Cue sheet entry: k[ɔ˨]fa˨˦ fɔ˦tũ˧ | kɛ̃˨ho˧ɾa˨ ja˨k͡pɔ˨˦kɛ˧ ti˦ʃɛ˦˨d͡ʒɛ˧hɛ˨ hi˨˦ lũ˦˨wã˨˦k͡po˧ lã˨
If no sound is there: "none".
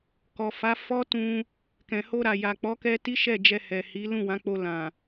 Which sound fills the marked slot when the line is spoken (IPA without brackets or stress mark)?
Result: ɔ˨